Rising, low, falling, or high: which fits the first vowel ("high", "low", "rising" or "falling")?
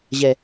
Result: low